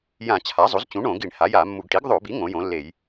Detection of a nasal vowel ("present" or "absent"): present